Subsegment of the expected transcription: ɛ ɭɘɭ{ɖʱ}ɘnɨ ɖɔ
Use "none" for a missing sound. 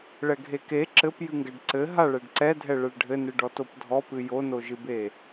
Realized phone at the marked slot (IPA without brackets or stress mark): ɖʱ